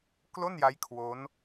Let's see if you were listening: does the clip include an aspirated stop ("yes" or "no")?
yes